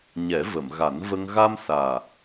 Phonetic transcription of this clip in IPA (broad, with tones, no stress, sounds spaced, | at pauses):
ɲ ɛ˨˩˦ v ə˨˩˨ m ɣ a˨˩˦ n v ə˧ ŋ ɣ a˧ m s aː˨˩